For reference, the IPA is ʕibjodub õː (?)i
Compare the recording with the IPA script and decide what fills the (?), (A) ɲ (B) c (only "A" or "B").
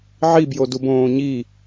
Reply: A